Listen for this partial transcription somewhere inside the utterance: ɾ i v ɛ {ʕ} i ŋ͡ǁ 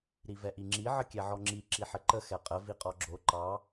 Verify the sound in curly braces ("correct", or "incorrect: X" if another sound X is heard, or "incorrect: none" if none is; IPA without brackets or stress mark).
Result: incorrect: ʔ